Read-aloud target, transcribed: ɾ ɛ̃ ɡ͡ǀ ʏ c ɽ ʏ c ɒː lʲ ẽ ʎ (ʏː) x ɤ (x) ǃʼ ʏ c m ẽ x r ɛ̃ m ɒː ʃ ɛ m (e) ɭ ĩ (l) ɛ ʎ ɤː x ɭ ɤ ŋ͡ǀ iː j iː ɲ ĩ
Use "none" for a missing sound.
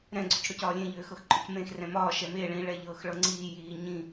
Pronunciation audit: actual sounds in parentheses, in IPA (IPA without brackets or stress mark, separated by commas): ʏː, x, e, ɭ